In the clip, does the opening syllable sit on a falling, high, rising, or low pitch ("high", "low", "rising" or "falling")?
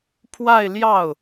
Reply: falling